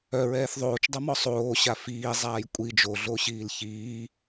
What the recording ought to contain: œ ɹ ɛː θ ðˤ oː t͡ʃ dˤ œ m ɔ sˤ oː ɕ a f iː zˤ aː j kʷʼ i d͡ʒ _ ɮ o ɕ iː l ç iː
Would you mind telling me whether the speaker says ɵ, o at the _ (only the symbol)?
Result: o